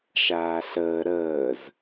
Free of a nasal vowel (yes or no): yes